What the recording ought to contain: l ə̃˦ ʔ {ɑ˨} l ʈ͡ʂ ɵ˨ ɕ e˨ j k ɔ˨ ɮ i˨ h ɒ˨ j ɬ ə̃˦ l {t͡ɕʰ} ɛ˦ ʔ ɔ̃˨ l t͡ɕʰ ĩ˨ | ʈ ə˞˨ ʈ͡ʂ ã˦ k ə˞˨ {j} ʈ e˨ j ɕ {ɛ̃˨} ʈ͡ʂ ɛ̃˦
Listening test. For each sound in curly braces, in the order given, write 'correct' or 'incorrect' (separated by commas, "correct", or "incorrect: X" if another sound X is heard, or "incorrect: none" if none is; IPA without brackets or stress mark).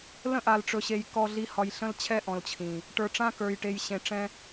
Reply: incorrect: a˨, correct, correct, incorrect: ẽ˨